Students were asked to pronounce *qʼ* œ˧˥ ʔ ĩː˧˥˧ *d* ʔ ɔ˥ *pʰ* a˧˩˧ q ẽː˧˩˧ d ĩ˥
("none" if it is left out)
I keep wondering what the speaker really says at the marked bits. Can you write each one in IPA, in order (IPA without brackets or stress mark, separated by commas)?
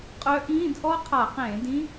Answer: qʼ, d, qʰ